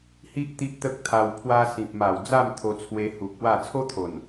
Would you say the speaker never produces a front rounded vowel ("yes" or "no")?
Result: yes